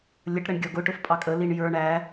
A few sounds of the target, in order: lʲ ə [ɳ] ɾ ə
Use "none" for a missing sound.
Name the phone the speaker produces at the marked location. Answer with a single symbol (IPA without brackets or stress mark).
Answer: ʈ